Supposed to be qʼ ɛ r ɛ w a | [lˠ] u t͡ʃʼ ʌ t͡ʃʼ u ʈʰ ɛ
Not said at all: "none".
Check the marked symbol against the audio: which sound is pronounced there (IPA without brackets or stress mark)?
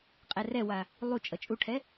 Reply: lˠ